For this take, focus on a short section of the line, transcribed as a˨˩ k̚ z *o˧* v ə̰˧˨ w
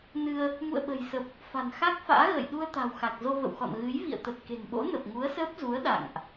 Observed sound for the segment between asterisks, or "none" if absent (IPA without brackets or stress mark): o˧